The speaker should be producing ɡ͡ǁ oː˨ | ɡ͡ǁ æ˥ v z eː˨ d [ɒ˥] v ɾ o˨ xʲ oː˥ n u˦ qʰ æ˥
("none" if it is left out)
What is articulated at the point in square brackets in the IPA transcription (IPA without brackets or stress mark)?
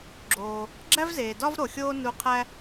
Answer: ɒ˥